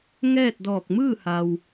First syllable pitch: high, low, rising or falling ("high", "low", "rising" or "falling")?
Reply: falling